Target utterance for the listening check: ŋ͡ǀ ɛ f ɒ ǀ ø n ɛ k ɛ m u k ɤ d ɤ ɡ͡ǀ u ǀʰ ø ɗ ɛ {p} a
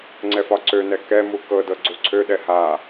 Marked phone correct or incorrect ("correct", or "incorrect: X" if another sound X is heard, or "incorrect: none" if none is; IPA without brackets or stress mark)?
incorrect: h